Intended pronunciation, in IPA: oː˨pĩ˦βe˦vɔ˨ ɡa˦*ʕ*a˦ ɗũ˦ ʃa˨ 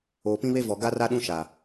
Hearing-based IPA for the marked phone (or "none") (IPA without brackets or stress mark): r